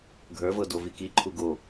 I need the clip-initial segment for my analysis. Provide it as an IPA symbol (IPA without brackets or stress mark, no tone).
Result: ɡʱ